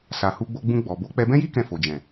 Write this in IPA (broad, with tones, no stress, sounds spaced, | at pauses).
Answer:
s a˨ h u˧ ɡ͡b o˧ ɡ͡b ũ˧ ɡ͡b ɔ˨ b o˨˦ k͡p ɛ˧ b ɛ̃˦ j i˦ k ɛ̃˦˨ f o˨ d͡ʒ ɛ̃˨